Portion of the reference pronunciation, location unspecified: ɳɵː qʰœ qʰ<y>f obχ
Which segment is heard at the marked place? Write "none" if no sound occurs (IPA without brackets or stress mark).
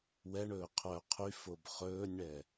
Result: y